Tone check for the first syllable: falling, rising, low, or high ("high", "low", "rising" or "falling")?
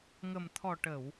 low